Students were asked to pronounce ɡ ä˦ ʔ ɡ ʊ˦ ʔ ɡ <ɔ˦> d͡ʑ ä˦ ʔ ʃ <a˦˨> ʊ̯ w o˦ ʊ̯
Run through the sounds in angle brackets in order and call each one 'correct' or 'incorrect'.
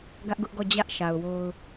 incorrect, incorrect

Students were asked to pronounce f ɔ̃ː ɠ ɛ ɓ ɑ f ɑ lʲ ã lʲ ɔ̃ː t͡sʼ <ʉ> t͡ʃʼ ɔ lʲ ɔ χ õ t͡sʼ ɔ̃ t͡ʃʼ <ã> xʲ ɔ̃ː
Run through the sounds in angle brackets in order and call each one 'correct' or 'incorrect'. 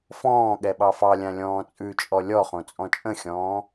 correct, incorrect

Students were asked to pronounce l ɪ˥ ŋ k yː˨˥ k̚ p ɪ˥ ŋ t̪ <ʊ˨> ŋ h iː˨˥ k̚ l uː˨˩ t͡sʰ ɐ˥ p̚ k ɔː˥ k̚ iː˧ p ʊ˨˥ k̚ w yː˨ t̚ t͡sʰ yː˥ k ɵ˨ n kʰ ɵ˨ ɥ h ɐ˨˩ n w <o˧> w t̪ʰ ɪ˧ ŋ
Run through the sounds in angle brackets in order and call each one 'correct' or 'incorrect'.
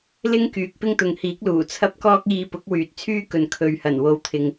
correct, correct

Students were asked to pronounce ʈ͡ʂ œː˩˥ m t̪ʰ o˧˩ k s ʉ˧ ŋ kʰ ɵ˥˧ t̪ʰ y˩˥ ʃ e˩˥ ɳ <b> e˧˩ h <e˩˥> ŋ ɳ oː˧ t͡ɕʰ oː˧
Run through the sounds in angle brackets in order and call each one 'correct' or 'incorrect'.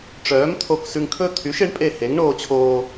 incorrect, correct

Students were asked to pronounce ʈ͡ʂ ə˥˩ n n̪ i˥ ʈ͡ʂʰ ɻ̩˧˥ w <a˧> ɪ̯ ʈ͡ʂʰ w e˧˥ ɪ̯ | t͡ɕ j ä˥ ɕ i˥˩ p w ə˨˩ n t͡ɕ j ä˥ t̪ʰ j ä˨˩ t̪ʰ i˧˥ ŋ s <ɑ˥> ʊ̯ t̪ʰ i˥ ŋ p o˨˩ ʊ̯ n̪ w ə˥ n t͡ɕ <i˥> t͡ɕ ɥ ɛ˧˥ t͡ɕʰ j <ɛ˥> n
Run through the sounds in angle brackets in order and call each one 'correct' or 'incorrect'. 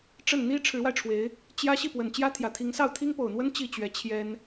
correct, incorrect, incorrect, correct

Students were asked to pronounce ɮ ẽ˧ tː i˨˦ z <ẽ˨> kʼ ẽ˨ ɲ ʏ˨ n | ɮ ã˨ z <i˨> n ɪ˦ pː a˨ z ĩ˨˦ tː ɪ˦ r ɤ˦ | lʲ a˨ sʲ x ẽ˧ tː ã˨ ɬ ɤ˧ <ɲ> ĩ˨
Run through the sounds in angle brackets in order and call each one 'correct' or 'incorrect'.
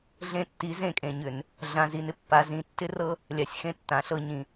incorrect, correct, correct

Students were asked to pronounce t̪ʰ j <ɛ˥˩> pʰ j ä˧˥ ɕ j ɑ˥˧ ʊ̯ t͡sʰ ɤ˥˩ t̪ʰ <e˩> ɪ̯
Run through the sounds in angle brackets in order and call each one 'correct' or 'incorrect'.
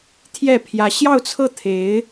correct, incorrect

